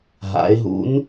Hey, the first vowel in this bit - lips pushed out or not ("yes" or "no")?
no